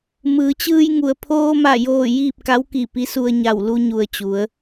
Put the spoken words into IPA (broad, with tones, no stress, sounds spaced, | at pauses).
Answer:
m ɯː˩˧ t͡ɕ ɯː˧ j ŋ u˩ ə̯ pʰ oː˧ m a˧˩ j oː˧˩ j iː˥˨ p̚ k a˧˥ w k i˧˩ p i˧˥ s u˧ ə̯ ɲ a˧˩ w l u˧ ɲ u˩ ə̯ t͡ɕ u˩˧ ə̯